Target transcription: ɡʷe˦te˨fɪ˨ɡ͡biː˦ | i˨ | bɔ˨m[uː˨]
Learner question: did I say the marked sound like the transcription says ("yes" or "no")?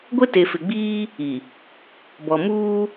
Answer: no